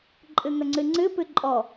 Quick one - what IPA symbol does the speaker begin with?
ǃʼ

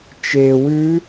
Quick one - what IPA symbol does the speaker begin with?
t͡ʃ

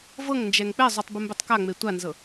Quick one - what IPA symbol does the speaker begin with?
v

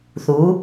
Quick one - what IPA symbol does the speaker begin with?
θ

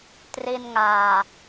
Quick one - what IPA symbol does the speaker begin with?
t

